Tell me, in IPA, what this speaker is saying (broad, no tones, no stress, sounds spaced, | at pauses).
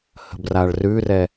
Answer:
h ə̤ b r a ɭ r ʉ r ɛ